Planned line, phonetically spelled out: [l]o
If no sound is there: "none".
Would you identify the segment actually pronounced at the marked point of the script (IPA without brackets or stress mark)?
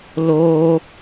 l